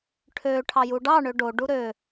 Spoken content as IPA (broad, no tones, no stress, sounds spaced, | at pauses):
ʈʰ ø ʈʰ ɑ j u ɖ ɑ ɳ ø ɖ o ɖ u ɾ ø